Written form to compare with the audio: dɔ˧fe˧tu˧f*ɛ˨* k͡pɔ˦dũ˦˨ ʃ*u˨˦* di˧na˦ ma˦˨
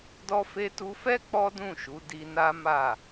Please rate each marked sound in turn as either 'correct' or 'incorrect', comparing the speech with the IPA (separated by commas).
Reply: incorrect, correct